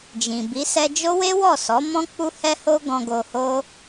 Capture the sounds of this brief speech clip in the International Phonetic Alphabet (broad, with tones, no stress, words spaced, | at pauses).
d͡ʒĩ˨bi˨˦ sɛ˧d͡ʒo˦ we˦wɔ˦˨sɔ˨˦mɔ̃˦ k͡pu˦hɛ˦ho˦ɡɔ̃˧ ɡo˧ho˦